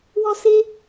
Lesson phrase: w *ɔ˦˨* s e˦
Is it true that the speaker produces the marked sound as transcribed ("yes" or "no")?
no